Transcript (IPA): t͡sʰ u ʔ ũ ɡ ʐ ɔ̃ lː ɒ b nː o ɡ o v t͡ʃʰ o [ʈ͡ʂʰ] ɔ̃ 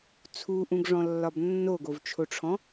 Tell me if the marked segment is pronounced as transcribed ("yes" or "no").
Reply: yes